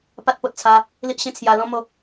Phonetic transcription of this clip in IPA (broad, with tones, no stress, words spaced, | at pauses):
pa˦t̚po˨t̚t͡sʰa˧ | li˦ʔɕẽ˥˧t͡sʰja˧lɔ̃˦ mo˦